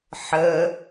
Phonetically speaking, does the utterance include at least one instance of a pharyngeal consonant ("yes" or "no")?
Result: yes